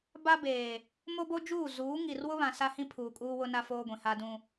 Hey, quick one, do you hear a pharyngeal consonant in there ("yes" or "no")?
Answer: no